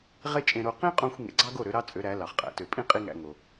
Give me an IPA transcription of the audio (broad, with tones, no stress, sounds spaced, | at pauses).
ʁ e˥ t͡ʃʼ ẽ˧ ɾ o˧ q ĩ˥ qʼ õ˧ xʷ ŋ ḛ˩˥ ɡ͡ǀ ɑ˥ ɡ o˥˩ ɾ ø˩˥ ɾ ɑ˥ t͡sʼ ø˩˥ ɾ æ˩˥ l ɑ˩ χ qʼ æ̰˩˥ t ø˩ pʼ ĩ˥ qʼ i˥ ŋ æ̰˧ ŋ o˩